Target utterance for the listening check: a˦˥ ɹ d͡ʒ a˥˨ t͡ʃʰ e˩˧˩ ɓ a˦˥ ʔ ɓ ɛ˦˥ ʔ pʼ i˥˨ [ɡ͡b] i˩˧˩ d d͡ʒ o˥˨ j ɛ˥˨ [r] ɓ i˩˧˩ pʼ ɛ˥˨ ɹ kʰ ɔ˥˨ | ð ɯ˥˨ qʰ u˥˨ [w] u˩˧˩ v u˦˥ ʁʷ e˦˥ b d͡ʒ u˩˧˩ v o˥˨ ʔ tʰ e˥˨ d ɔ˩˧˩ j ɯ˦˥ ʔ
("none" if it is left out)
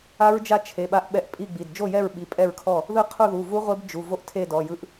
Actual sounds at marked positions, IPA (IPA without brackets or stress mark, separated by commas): ɡ͡b, ɹ, ð